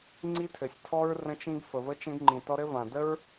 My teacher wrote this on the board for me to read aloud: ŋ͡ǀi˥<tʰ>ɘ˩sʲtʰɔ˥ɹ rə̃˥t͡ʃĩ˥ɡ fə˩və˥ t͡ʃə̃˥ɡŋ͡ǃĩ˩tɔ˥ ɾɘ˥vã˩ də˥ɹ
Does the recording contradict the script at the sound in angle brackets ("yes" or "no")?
no